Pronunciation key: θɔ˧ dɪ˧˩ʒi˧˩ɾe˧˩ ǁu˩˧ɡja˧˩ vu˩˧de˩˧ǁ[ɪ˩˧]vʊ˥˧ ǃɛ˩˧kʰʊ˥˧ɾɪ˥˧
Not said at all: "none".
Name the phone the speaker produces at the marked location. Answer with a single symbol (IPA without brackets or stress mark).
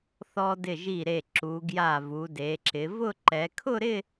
ɪ˩˧